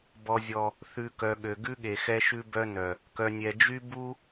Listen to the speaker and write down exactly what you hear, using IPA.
b ɔ˨ zʲ ɔ˨ | θ ʉ˨ k œ˨ ɠ ø˨ ɡ ʉ˦ ɠ e˨ x ɛ˦ ʃ ʉ˦ b œ˦ n œ˨ | k œ˨ nʲ ɛ˨ d͡ʒ y˦ b u˦

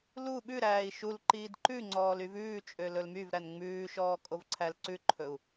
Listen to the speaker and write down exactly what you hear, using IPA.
l u ɓ ʉ ɾ æː i̯ ʃ u l ǃ iː d ǃ ʉ ŋ͡ǀ ɔː l y v ʉː t͡ʃʼ ø l ɵ l m y v ɾ æ n ŋ͡m ʉː ʃ ɔː kʼ o v ǀʰ æ l ǀ ʉ ǃʰ ɵ u̯

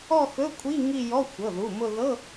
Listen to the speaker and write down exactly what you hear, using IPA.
ɔ˥˧ x ɵ˧˥˧ kʷʰ i˧˥˧ ŋ i˥˧ j ɔ˧˥˧ xʷ ɤ˩˧˩ ð u˩˧˩ m ʊ˥˧ ð ɤ˧˥˧

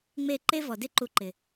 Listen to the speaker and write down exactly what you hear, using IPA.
ŋ͡m e˦˨ ǃ e˦ v ɔ˨ d ɪ˦ ǃ u˧ ǃ ɪ˨

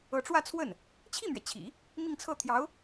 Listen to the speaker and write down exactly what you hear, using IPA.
ɤ˧˥ ʈ͡ʂ w ä˥˧ t͡sʰ w ə˥˩ n | t͡ɕʰ i˥˩ m ɥ ɛ˩ t͡ɕʰ ḭ˨˩˦ | m i˥˧ ŋ t͡sʰ ɤ˥˩ t̪ʰ j ɑ˧˥ ʊ̯

